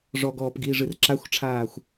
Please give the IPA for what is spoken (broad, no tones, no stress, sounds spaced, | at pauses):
ʐ ɔ ɡ ɔː p ɡ iː ʐ ɨ r ǁ a xʷ ʈ͡ʂʰ aː xʷ